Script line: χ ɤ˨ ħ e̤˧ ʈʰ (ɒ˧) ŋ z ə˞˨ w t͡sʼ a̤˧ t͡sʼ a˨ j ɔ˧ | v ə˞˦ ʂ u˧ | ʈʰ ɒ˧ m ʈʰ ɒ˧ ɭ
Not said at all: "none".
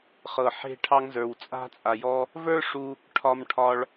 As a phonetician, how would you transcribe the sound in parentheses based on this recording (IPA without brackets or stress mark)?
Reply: ɑ˧